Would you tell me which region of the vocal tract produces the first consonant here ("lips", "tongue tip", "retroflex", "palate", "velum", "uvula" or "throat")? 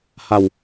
throat